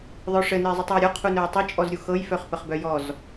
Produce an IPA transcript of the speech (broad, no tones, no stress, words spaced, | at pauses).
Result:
ðˤœʂɘ nɘe̯zˤutˤjɤɾʲɔ qʰunœe̯tˤɘ t͡ʃʼɔzɾʲuxɤj fœχpəχbœjɔz